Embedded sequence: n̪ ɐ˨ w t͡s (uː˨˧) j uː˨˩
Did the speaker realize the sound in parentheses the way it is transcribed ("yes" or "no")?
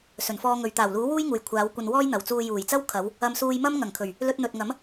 no